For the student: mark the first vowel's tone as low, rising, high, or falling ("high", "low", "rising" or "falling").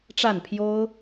falling